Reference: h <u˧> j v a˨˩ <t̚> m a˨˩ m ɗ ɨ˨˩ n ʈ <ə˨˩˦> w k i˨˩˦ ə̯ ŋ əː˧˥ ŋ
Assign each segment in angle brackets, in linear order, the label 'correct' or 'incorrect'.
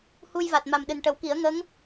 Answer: correct, correct, correct

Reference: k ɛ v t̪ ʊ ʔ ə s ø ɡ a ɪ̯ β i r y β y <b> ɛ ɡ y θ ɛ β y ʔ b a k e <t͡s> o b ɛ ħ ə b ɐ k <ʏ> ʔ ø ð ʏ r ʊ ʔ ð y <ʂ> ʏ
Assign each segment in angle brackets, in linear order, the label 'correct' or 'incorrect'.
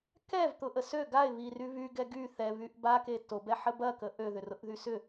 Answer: incorrect: ɡ, incorrect: t, incorrect: ə, incorrect: s

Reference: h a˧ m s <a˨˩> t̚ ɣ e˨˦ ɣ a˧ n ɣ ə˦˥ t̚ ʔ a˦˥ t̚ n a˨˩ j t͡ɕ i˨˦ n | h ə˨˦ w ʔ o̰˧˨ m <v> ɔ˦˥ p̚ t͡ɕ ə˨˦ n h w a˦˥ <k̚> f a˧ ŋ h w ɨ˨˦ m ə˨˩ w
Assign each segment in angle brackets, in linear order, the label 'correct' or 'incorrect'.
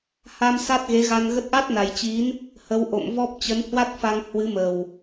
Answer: incorrect: a˦˥, correct, incorrect: t̚

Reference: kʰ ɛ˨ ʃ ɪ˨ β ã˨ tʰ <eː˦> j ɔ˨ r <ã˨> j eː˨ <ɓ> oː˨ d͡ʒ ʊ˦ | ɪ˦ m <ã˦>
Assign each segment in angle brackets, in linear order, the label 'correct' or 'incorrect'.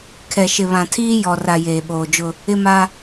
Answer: incorrect: iː˦, incorrect: a˨, correct, incorrect: a˦

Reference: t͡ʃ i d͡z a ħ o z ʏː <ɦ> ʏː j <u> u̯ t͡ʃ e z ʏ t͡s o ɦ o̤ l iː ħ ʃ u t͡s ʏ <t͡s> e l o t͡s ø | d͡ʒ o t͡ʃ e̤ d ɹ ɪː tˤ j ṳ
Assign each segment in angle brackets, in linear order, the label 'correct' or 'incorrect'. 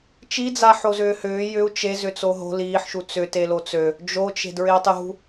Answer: incorrect: h, incorrect: ʏ, incorrect: t

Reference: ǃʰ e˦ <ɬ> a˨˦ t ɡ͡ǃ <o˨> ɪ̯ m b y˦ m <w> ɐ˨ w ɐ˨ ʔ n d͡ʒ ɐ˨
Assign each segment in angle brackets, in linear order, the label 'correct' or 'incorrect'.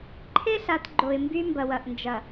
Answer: correct, correct, incorrect: b

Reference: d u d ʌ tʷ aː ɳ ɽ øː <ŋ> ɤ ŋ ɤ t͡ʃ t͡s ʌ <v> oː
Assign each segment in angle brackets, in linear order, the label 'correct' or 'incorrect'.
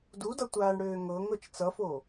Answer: correct, incorrect: f

